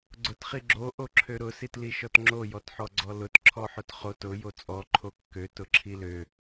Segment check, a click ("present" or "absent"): present